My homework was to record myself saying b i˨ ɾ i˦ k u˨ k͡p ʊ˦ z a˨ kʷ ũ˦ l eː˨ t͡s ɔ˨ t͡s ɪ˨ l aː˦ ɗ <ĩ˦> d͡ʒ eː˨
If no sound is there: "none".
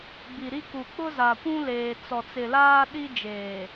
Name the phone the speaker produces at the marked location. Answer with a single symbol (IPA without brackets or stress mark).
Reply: i˦